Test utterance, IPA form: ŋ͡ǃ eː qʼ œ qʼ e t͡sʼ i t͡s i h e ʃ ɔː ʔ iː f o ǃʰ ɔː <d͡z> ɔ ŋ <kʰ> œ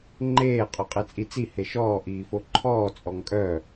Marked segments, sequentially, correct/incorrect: incorrect: t͡sʼ, incorrect: kʼ

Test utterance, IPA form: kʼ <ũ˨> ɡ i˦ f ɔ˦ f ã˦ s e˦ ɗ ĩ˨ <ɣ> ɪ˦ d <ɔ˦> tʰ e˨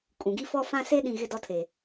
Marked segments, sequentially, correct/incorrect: correct, correct, correct

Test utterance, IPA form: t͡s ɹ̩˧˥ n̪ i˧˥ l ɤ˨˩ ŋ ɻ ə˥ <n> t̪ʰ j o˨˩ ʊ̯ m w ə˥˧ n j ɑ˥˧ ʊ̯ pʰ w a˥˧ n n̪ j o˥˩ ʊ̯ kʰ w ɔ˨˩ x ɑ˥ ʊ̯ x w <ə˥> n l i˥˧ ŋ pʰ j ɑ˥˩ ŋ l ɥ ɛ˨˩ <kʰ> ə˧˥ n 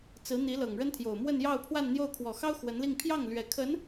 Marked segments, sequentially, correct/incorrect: correct, incorrect: ə˧˥, correct

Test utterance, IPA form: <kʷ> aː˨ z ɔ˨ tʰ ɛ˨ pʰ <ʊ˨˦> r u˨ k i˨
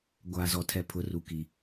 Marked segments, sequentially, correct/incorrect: incorrect: ɡʷ, correct

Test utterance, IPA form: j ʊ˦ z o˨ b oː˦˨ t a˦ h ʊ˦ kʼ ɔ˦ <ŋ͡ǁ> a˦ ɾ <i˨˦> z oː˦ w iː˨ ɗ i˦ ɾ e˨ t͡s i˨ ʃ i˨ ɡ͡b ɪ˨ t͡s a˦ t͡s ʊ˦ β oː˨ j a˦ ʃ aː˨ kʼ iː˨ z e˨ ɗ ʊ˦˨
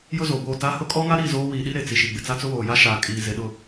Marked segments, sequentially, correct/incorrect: incorrect: ŋ, incorrect: i˦˨

